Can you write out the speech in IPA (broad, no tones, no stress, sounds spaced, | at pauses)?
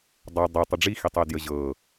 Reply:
dˤ a dˤ i tˤ ə ɖ͡ʐ i x i tˤ ɤ d j ə ʑ ɤ